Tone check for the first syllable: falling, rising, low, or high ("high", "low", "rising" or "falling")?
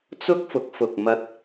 high